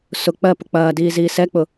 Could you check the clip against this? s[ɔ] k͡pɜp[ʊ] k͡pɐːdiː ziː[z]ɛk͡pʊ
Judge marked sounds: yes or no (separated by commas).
no, yes, no